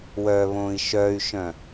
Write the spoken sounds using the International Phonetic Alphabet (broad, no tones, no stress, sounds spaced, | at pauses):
w œ β õː i̯ ʃ œ y̯ ʃ œ̃